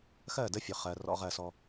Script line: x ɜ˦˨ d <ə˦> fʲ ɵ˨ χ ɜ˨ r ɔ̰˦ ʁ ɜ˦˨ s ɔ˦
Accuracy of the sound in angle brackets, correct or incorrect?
correct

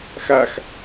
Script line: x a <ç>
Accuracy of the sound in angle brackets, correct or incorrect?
incorrect: x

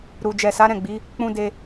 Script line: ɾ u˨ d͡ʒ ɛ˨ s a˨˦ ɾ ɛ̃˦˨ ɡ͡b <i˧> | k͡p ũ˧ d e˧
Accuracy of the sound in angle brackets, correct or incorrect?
incorrect: i˨˦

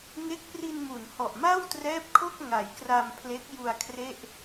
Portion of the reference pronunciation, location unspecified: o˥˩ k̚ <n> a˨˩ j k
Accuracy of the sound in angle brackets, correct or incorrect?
incorrect: ŋ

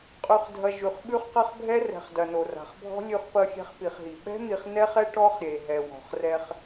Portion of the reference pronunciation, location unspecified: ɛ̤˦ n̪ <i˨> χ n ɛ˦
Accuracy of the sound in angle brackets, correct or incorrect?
correct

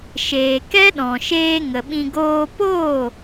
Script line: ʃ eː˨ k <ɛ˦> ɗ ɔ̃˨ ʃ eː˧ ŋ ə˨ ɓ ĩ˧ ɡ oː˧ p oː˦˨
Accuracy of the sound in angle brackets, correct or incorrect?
correct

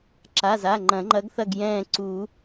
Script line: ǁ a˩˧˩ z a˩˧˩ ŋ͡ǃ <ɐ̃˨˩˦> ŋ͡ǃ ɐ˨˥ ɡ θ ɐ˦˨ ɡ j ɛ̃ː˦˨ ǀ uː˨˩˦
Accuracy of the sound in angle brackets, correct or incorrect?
correct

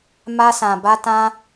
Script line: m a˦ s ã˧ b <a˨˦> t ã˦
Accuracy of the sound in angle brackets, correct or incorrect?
incorrect: a˦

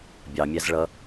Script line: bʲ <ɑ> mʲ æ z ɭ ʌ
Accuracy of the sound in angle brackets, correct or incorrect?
correct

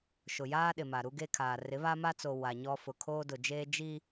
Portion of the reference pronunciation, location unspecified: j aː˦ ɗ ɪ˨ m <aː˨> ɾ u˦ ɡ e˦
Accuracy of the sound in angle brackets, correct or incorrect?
incorrect: a˨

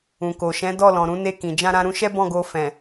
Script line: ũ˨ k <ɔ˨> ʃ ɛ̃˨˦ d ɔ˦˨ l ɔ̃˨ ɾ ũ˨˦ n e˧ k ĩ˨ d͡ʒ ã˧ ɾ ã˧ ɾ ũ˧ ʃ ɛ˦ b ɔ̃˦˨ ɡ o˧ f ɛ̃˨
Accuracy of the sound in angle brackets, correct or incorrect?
incorrect: o˨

